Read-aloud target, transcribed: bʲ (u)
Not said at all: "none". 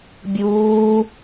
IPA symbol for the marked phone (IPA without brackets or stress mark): uː